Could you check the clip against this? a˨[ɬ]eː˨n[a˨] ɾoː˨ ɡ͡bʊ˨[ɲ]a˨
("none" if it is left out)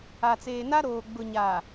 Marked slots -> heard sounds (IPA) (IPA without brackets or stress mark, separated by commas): t͡s, a˦, ɲ